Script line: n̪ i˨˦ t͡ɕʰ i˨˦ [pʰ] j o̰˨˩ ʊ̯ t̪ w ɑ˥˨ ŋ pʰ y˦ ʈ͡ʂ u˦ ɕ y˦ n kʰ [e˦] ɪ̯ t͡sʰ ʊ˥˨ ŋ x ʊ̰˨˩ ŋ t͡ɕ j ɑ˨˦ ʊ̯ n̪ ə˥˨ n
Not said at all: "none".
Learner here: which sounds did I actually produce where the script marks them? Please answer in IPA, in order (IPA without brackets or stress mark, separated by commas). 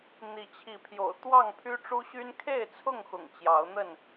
pʰ, e˥˨